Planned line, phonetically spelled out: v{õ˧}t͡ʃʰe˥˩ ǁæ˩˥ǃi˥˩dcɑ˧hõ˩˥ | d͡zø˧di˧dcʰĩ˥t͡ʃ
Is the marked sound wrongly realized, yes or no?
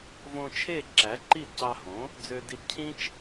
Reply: no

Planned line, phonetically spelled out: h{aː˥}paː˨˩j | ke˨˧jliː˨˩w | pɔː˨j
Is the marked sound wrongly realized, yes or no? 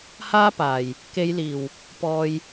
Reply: no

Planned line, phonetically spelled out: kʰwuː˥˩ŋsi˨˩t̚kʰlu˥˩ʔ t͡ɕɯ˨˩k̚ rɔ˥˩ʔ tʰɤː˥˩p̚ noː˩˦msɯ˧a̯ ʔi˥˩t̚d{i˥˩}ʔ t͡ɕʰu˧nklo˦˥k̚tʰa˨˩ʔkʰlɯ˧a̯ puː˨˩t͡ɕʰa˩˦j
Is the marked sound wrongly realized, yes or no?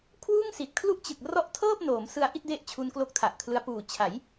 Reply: yes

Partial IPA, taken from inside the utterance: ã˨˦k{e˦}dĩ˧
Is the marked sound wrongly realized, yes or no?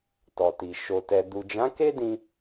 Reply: no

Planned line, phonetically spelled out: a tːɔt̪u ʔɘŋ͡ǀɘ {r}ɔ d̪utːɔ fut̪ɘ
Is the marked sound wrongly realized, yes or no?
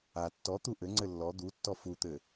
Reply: yes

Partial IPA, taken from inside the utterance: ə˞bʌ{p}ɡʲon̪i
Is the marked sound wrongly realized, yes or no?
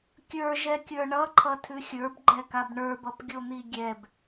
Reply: no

